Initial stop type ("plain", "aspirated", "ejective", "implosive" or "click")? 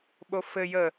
implosive